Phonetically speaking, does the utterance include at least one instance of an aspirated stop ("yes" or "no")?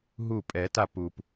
no